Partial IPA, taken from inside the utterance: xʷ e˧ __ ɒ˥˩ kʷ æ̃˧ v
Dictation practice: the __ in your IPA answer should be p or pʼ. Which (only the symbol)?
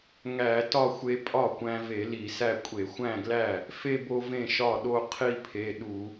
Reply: pʼ